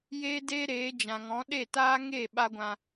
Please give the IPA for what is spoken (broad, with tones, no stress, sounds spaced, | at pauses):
j eː˦ d eː˦ ɾ eː˨˦ d͡ʒ ã˨ ŋ ɔ̃˨˦ ɗ e˦˨ t aː˦ ŋ e˦˨ ɓ a˦ ɡʷ ã˧